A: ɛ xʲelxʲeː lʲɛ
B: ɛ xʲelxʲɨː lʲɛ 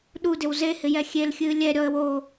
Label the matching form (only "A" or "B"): B